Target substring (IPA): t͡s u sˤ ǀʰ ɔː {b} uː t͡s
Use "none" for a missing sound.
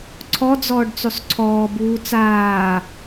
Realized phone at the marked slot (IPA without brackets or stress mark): b